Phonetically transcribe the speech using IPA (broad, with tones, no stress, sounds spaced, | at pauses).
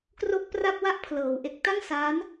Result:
k r o˥˩ k̚ p r a˥˩ p̚ w a˥˩ ʔ pʰ l ɤː˩˦ w ʔ e˨˩ k̚ t a˥˩ ŋ s aː˦˥ n